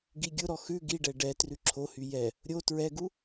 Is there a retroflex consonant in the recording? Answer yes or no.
yes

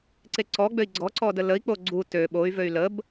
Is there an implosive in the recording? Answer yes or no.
yes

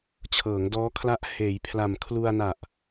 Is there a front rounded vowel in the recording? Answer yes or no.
no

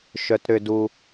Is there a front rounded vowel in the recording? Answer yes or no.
yes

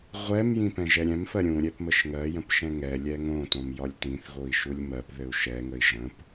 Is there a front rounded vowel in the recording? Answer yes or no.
no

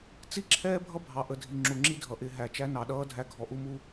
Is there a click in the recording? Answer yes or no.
yes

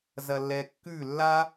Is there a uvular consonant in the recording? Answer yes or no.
no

